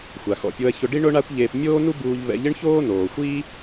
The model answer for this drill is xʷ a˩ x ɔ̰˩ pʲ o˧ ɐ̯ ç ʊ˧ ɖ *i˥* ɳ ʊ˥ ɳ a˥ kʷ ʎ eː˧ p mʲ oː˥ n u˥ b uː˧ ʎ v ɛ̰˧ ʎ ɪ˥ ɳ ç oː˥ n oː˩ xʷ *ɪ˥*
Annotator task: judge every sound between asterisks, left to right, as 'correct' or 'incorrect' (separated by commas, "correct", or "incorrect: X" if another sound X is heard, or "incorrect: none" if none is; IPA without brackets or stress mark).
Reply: correct, incorrect: i˥